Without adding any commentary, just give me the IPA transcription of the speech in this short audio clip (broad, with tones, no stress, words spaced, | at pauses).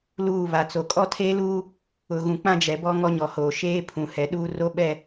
luː˦˨ βa˨t͡so˨ kʼɔ˦tʰeː˦luː˦ | ʊ˨ɣũ˨k͡pã˦d͡ʒɛ˨ bɔ˦ŋɔ˦ɲɔ˨hoː˨ ʃeː˦ pʰũ˨ hɛ˨ɗuː˦ ro˦ɓɛ˦˨